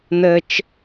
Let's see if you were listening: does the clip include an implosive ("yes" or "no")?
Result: no